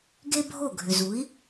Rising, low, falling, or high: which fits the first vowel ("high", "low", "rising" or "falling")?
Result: high